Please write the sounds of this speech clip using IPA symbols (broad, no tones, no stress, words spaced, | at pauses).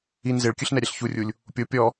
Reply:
in zeɭkʲɯɬnɛɾʲɛɬ çurʲulʲ | pʲo pʲɔ